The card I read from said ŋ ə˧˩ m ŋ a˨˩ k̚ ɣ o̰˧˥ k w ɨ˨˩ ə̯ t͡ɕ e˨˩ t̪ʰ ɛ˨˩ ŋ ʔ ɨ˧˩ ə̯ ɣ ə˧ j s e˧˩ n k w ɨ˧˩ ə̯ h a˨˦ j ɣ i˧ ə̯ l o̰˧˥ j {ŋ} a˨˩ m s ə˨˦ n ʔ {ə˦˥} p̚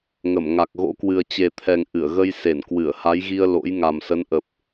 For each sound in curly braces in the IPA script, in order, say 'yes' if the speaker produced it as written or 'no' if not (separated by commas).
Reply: yes, no